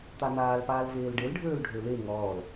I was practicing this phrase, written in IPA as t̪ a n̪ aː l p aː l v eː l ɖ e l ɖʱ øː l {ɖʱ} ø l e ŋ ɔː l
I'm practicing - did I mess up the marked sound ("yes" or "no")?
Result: no